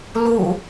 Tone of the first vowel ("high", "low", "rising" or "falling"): falling